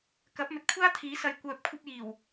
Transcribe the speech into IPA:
k ɐ˨˥ p̚ m ɵ˨ t̚ kʷʰ aː˥ t̪ʰ iː˨˥ s ɐ˨ j kʷ œː˨ p̚ kʷʰ ɐ˧ p̚ j iː˨˩ w

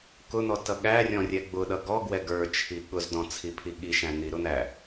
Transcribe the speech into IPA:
k ʊ n̪ ɔ t ʌ ɠ æ rʲ ɔ̃ rʲ ɛ ɡ͡b ʊ ɗ ʌ ɡ ɔ ɡ w ɛ ɡ ə˞ t͡ʃʰ i ɠ ʊ z d ɔ̃ t͡sʰ i pʰ i ɠ i ʃ æ̃ n̪ i ɾ ʊ n̪ æ

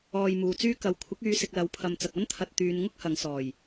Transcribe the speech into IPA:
ɔː˨ j m uː˨ t͡s yː˥ k ɐ˨˥ w kʷʰ ɪ˨˥ k̚ yː˨˧ s ɪ˨ k̚ l ɐ˨˥ w pʰ ɐ˨ m t͡s ɐ˨ k̚ ɐ˥ n t̪ʰ ɐ˨ t̚ t̪ yː˨˧ n ŋ ʊ˥ k̚ h ɐ˨˧ ŋ s ɔː˨˩ j

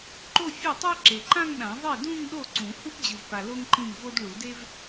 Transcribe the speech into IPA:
ǃ o˥˧ fʲ ɯ˥˩ tˤ ɛ˥ ǁ e˨ ǃ ã˥˧ ŋ ɗ ã˨˩˦ ðˤ e˥˩ d ũ˥˧ ŋ ɗ o˥˩ ǀ ũ˨˩˦ h u˥ p d͡ʑ ɯ˨ v p a˨ l o˥ ŋ ǃ ĩ˥˩ ŋ v o˥ d ɭ u˨˩˦ d e˥ v

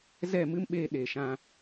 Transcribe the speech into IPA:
z ɛ˦˨ m ɨ˦ m ɓ eː˧ ɗ e˨ ʃ ã˧

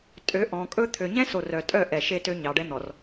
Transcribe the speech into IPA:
tʼ ø˨˦ ʔ ɔ̃˨ kʼ ɵ˦ t̪ʰ ø˨ ɲ ɛ̃˦ s o˨ r œ˨ tʼ œ˦˨ ʔ ɛ˨ ʃ e˦ t ø˦ ɲ ɑ˨ ɖ ɛ˦ n̪ ɔ˨ r

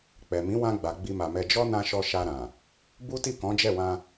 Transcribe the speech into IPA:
k͡p ɛ˨ m ĩ˨˦ w ã˧ ɡ͡b a˨ ɡ͡b i˧ m a˨ m ɛ˧ d͡ʒ ɔ˦ n ã˧ ʃ ɔ˧ ʃ a˧ ɾ ã˨ | b u˦ t i˦˨ k ɔ̃˨˦ d͡ʒ ɛ˦˨ w ã˧

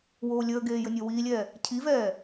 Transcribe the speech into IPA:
w oː lʲ əː ɡ eː j ɘ nʲ əː w iː lʲ ɛː | cʰ i v ɛː

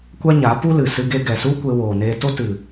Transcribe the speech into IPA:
kʷ a˦ ɲ a˨˦ p u˦ l ɨ˨ s ɨ˧ ɡ e˧ ɡ ɛ˨ s u˦ kʷ e˧ w oː˨ n eː˧ t o˦ t ɨ˨

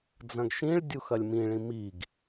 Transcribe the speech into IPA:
d͡z ɐ̃ ɡ ʃ ĩ ɭ dʲ u x ɐ lʲ m ĩ ɭ ĩ m i ɡ

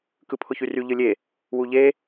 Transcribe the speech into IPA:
k ɯ pʰ ʊ ç y r y ʎ ɯ lʲ e | w u ʎ e

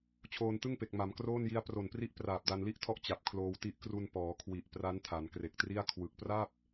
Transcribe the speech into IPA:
t͡ɕʰ oː˧ n t ɯ˥˩ ŋ p e˨˩ k̚ m a˩˦ m k r oː˥˩ n j i˦˥ a̯ p r o˨˩ n p r i˦˥ ʔ p r aː˨˩ p̚ d a˧ n l i˥˩ ʔ tʰ ɔ˥˩ ʔ t͡ɕ a˨˩ p̚ kʰ l oː˧ w t i˦˥ ʔ k r u˧ n p ɔː˩˦ kʰ w i˨˩ ʔ p r a˦˥ n tʰ a˩˦ n k r e˨˩ k̚ t r i˥˩ a̯ kʰ w ɯ˨˩ k̚ p r a˥˩ p̚

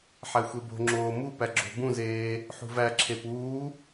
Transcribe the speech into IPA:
ħ æ xʷ e b o̤ ŋ͡ǁ oː m u p æ ɡ͡ǁ o̤ b ũ z eː | ħ ṳ v æ ǁʰ e p uː

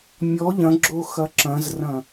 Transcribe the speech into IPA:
mʲ ɔ ʎ ɐ̃ ɡ͡ǁ o x ɐ ǁ ɐ̃ z r ɐ̃

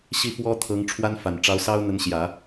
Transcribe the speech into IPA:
ɕ i˥˩ f w ɔ˥ t̪ʰ ɤ˧˥ ŋ ʈ͡ʂʰ w a˥ n f a˨˩ n ʈ͡ʂ ɑ˧˥ ʊ̯ s ɑ˥ ʊ̯ n̪ ə˧˥ n ɕ j ä˨˩˦

